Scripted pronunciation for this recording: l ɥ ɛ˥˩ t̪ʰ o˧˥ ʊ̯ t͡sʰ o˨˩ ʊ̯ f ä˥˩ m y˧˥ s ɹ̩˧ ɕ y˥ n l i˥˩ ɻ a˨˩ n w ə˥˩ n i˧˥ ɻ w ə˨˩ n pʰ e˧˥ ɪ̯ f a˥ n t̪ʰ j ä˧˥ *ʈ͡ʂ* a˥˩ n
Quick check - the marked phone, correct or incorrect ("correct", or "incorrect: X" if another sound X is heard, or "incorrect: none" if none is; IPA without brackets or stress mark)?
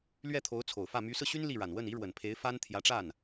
correct